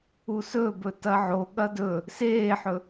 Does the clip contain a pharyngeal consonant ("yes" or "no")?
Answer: yes